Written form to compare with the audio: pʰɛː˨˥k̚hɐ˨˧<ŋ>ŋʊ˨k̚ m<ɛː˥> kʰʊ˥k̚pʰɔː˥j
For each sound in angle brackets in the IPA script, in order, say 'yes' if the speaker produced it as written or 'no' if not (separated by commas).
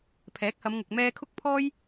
no, yes